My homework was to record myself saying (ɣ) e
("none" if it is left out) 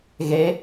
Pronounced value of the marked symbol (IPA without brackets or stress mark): ɣ